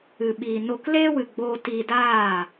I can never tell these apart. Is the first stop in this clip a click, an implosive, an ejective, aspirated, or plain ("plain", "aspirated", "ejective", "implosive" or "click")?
implosive